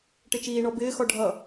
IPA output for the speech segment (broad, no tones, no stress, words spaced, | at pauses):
ʈɪt͡ʃiːɳɔ bɪːxɔ ɖʱʌ